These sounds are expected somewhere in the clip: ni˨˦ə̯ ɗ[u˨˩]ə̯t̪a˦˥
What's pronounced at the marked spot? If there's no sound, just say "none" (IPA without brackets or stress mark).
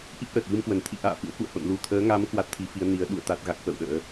ṵ˧˨